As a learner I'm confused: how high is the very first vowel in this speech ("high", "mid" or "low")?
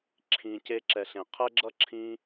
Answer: high